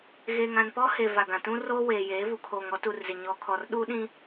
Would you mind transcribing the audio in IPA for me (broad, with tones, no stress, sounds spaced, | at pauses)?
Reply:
ɣ eː˨ ŋ ã˨ n p ɔ˦ h e˨ v a˨ ɡ ã˨ t ũ˦ r oː˦ w eː˨ j eː˨˦ v u˨ kʰ oː˨ ŋ ɔ˦ t u˨ r z ɪ˨ ɲ ɔ˨ kʰ ɔ˨ r ɗ u˦ ɗ ĩ˦